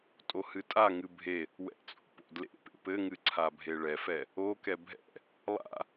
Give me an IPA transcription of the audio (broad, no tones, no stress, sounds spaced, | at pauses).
tʼ o h ɨ tʼ a ŋ ɨ bʱ e | w ɛ̰ t͡sʼ o̰ p o̰ d l ḛ p ḛ p ɘ ŋ ɨ ǀʰ a bʱ e ɭ ɛ f ɛ | o k ɛ bʱ ɛ̰ | lˠ a̰